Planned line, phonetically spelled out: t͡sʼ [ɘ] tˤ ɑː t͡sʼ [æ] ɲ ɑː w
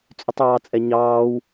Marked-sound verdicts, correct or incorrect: incorrect, incorrect

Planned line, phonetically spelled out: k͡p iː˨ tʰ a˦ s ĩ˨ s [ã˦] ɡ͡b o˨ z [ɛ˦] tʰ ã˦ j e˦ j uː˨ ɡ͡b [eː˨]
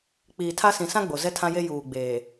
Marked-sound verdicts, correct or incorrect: correct, correct, correct

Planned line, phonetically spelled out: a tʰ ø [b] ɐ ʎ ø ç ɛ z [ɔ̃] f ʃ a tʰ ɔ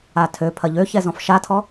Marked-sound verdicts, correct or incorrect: incorrect, correct

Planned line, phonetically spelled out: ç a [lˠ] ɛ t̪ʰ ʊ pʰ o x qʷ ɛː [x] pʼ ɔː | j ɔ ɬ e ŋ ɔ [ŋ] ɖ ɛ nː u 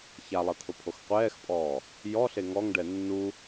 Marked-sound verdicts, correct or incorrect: correct, correct, correct

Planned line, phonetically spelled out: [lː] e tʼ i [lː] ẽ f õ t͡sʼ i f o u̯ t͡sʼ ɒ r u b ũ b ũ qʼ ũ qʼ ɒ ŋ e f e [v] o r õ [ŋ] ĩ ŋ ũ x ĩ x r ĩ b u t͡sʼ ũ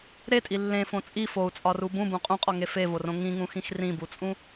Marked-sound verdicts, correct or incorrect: incorrect, correct, correct, correct

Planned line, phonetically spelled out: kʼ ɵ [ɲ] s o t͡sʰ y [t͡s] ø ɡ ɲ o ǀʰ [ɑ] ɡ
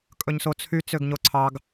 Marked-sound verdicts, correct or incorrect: correct, correct, correct

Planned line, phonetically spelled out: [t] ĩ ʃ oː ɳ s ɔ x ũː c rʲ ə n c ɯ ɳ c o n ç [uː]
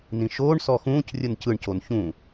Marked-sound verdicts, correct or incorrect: incorrect, incorrect

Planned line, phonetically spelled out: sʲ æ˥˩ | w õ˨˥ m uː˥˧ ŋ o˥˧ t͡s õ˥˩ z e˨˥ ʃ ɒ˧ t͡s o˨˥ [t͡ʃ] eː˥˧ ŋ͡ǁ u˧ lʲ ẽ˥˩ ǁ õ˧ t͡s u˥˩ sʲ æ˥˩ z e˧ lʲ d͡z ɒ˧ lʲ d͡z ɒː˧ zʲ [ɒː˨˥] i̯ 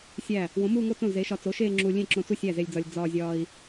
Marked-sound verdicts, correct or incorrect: incorrect, incorrect

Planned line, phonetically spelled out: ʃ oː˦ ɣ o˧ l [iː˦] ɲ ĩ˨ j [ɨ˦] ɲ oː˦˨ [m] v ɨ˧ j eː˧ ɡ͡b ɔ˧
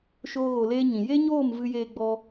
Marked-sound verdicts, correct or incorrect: incorrect, incorrect, correct

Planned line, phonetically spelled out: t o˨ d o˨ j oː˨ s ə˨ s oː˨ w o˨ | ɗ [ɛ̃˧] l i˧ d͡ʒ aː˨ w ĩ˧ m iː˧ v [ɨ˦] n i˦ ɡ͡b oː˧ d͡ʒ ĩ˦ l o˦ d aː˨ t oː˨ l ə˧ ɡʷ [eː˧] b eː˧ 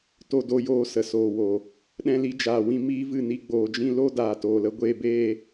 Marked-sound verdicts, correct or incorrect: correct, incorrect, correct

